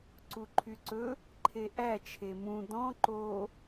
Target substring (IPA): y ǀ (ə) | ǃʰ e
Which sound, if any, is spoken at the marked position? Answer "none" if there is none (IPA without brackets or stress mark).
ɵ